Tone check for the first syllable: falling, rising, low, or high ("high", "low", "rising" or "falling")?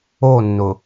falling